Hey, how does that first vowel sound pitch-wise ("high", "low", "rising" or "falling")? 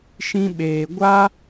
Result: high